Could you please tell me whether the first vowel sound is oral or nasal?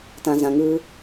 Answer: nasal